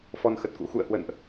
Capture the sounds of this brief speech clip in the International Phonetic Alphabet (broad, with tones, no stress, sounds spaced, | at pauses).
f ɔ˧ n x ə˨˩ t̚ k ṵ˧˥ x ṵ˧˨ ə̯ h w ə̰˧˨ n ʔ